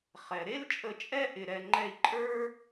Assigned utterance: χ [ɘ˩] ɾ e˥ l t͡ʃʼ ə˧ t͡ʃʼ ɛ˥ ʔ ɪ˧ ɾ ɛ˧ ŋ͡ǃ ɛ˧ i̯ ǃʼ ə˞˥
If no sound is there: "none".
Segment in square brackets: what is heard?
ɛ˩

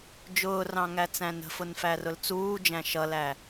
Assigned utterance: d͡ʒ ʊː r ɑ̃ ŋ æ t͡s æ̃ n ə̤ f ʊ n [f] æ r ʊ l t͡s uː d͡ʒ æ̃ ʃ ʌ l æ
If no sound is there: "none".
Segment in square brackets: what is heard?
f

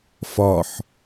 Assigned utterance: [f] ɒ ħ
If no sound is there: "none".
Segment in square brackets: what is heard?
f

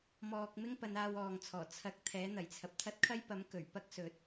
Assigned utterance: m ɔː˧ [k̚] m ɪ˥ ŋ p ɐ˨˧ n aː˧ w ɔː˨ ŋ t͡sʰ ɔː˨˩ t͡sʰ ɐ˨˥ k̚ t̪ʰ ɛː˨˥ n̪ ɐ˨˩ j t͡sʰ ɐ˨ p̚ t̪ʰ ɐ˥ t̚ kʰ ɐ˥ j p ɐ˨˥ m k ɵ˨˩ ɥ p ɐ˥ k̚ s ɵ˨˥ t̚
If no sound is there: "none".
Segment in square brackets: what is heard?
k̚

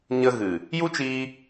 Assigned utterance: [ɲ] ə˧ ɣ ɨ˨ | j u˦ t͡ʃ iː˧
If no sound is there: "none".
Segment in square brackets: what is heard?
ɲ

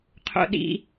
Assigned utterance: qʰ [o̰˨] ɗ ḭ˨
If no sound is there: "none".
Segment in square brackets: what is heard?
o̰˨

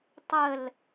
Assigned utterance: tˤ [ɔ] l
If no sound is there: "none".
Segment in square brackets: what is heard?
ə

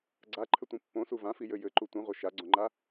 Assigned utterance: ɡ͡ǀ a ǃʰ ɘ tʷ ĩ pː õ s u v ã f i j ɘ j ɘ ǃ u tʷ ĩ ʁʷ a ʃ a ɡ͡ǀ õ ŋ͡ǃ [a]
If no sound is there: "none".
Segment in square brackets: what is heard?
a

